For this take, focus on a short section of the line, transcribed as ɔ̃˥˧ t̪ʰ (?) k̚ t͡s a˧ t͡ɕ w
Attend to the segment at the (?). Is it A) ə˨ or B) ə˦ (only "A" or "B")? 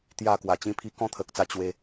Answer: A